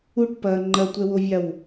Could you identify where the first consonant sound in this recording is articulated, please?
retroflex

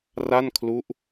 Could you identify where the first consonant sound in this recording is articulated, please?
alveolar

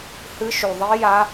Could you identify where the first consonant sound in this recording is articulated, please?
glottal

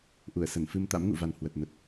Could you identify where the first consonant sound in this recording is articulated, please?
glottal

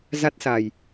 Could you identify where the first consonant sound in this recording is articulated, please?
alveolar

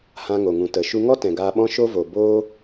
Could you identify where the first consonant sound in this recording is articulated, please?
glottal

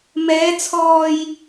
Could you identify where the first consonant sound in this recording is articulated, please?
labial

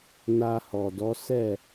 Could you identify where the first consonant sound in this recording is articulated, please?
alveolar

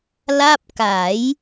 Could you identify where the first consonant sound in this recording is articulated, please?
alveolar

